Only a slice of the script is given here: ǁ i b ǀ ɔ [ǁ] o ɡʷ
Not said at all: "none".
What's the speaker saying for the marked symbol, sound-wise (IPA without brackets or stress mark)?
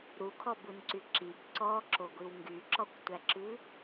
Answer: ǁ